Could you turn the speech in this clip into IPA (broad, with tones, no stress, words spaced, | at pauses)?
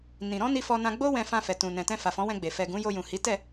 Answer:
nĩ˨ ɾɔ̃˧ ni˧fɔ˧nã˧ ɡ͡bo˦ wɛ̃˧fã˧fɛ˨ tũ˨nɛ̃˨tɛ̃˧fa˨ fɔ̃˨˦wɛ̃˧ɡ͡be˨ fɛ˨ɡũ˨˦ jo˧jũ˨ hi˨˦tɛ˦˨